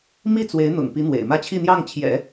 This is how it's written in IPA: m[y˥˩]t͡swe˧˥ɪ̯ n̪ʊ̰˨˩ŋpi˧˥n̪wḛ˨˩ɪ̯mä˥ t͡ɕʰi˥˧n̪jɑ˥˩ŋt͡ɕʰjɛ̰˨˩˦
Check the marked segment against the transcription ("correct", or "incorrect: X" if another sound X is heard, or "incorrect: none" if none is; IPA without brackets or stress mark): incorrect: i˥˩